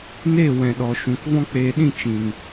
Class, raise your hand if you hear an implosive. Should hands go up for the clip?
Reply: yes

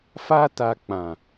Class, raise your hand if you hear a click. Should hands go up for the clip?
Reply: no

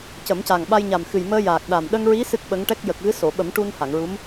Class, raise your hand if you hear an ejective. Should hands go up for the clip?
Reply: no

